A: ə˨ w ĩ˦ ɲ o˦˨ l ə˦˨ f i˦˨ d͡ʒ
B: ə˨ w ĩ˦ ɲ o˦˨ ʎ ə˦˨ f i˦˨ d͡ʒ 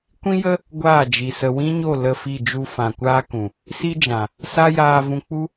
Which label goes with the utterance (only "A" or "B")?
A